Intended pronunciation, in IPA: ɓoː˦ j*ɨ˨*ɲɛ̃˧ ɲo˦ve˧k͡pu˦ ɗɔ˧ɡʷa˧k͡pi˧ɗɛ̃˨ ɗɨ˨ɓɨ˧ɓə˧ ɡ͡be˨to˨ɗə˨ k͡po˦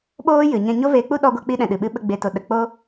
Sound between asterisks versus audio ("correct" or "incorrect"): correct